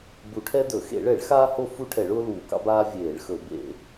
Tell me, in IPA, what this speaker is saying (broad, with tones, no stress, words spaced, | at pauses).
bu˧˩˧ʈʰɛ˥dɵ˧˩˧ xḛ˧˩˧ɭɛ˧˩˧ɭ xaː˥ho˥ fu˥ʈʰɛ˧˩˧ɭʊː˥ luː˧˩˧kɑ̰˥baː˥ vʲeː˧˩˧ɭxɵ˧˩˧ bḛ˧˩˧